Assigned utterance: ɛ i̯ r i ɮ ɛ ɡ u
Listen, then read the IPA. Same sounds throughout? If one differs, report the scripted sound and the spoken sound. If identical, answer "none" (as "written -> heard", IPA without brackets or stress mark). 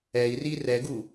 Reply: ɮ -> r